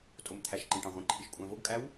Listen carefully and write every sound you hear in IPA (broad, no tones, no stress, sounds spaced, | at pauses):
tʼ o m t̪ʰ æ ʃ ǃ ẽ ʈ ɑ̃ ʁʷ ẽ ǃʰ i ʃ kʷʼ æ̃ v o ɡ kʼ æ w